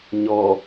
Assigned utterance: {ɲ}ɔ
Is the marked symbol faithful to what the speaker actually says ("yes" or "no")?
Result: yes